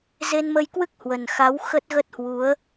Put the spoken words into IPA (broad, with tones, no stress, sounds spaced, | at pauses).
z e˧ n m ə˧ j k w ɨ˦˥ k̚ h w ə˨˩ n x a˨˦ w x ə˦˥ t̚ ɣ ə˦˥ t̚ h w u˨˦ ə̯